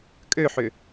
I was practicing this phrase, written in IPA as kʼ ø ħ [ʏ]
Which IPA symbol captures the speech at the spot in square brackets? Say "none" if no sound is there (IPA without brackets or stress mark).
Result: ʏ